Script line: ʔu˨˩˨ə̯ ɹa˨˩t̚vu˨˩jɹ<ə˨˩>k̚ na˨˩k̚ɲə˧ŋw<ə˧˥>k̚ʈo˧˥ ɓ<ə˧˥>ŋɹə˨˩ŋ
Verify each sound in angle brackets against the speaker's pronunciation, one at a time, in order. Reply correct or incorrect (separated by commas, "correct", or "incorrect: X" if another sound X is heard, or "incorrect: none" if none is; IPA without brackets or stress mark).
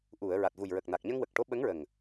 correct, incorrect: ə˨˩, correct